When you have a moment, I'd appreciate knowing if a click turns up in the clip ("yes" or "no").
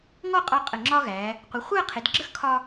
yes